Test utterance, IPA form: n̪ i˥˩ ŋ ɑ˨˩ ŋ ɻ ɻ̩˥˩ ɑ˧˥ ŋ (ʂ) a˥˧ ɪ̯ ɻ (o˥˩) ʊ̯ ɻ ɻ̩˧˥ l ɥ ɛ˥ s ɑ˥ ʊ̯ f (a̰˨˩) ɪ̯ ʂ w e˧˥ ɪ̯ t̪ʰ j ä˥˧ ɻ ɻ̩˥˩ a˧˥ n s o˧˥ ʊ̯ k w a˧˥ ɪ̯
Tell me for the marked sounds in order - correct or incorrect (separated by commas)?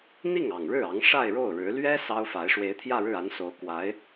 correct, correct, incorrect